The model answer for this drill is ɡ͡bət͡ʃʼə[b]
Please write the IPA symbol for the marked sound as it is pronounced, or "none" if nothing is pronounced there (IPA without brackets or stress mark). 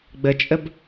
b